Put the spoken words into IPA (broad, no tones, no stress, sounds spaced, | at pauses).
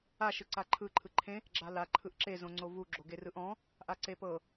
a ʃ ɯ ǀ a ǃʰ ɯ ǃʰ ɯ ǃʰ ẽ | ɡ͡ǁ a l a ǃʰ ɯ ʔ ǁ e z õ ŋ͡ǀ o v u ɡ͡ǁ o ɡ e r ɯ ʔ ɔ̃ | ʔ a ǀ e p ɤ